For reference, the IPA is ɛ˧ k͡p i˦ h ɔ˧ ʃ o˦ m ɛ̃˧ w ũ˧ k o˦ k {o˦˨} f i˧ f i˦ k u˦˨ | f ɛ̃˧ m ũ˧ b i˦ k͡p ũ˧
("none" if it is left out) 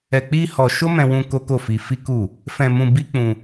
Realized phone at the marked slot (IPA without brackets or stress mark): o˦˨